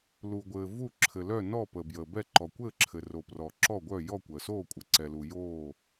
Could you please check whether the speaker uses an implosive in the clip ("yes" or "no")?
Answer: no